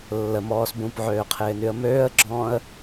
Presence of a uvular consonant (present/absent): present